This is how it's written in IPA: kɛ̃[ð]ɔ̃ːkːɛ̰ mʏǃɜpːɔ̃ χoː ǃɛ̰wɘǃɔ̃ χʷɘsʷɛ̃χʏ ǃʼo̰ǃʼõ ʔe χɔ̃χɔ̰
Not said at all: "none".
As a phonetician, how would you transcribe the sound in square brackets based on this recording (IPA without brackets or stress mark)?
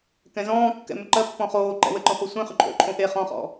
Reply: z